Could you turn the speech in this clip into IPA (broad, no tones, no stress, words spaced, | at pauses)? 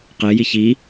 qeji çi